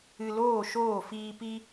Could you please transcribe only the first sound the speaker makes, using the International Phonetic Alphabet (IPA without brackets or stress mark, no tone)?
ɨ